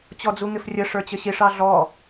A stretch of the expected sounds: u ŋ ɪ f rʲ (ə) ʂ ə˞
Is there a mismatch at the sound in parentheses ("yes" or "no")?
no